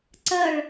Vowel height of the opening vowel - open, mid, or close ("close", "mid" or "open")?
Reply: open